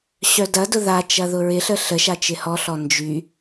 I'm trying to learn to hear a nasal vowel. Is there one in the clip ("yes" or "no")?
no